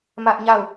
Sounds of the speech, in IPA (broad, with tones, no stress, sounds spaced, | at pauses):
m ä˦ ʔ ɲ a˦˨ ʊ̯